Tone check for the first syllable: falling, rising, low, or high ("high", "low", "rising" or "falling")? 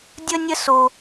high